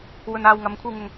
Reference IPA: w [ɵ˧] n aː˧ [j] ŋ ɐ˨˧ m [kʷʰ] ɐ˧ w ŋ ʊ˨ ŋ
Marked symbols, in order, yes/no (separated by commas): yes, no, yes